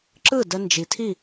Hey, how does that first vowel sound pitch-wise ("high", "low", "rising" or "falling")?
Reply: falling